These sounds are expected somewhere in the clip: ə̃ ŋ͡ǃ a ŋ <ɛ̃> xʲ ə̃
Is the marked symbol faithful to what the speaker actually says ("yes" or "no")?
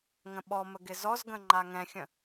yes